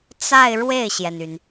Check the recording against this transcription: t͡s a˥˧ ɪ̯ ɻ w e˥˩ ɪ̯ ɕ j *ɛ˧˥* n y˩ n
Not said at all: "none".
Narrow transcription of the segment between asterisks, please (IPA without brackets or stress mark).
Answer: ɛ˩